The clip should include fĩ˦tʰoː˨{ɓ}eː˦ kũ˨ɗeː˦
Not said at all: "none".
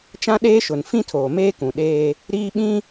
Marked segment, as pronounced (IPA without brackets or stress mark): m